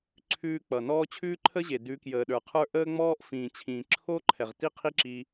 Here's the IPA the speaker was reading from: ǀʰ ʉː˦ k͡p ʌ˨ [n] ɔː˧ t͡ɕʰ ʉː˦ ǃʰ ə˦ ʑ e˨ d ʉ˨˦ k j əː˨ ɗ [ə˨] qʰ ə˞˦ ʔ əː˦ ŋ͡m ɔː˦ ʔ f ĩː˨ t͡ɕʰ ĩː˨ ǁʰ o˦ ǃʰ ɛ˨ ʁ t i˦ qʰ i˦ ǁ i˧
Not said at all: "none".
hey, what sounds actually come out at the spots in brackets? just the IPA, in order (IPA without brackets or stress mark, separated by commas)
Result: n, ə˞˨